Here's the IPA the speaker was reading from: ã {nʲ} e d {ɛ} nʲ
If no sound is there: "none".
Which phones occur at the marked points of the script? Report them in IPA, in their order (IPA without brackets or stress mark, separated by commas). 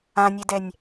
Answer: nʲ, ɛ